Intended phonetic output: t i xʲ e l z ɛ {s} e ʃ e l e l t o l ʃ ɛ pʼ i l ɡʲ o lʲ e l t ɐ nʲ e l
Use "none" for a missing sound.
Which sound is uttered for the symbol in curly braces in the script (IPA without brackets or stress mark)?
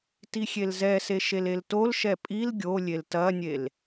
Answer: s